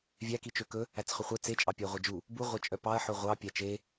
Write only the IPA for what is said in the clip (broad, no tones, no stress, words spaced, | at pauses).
vʲækit͡ʃø kɵ | æt͡sχɵχʷɛ t͡set͡ʃʼɑ pʲæʁʷɛd͡ʒu | buʁʷæt͡ʃʼœ pɑɐ̯ħɵ ʁʷɑ pʲæt͡ʃe